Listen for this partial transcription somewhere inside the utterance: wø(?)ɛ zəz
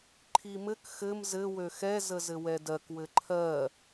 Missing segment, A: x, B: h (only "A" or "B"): A